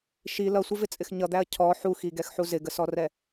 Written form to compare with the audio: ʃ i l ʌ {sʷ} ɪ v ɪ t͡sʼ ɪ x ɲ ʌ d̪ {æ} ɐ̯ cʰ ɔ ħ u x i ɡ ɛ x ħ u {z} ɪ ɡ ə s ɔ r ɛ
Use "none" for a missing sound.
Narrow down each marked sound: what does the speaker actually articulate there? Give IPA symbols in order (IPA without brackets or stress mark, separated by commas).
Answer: sʷ, æ, z